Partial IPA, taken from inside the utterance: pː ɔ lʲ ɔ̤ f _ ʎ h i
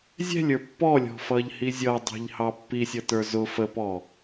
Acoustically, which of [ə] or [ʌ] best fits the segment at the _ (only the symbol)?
ʌ